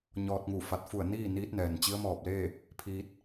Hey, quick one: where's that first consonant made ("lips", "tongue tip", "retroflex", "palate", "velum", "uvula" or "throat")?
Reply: palate